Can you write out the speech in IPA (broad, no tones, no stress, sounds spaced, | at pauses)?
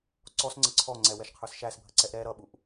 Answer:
ǀ ɔ s ŋ͡ǀ ə ǀʰ ɔ ŋ͡ǀ ɛ w ɛ ʃ qʰ ə˞ s ʃ æ s bʱ ə ǀ ɛ ʔ ɾ ɛ ɾ ʌ ɓ u ʔ